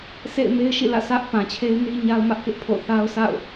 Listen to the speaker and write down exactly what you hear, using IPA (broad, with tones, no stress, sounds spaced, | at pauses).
s ḛ˦˨ ɪ̯ m e˦ ɪ̯ ʃ ḭ˦˨ l ä̰˦˨ s ä˦ ʔ p ã˨ t͡ɕʰ e˦ ɪ̯ n i˦ ɲ a˦ ʊ̯ m ä˦ ʔ k ɪ˦ ʔ pʰ o̰˦˨ θ a˦ ʊ̯ s a̰˦˨ ʊ̯